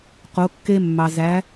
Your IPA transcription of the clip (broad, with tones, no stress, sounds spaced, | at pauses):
q o˩˧ kː e˧ mː ɑ˩ z æ˩˧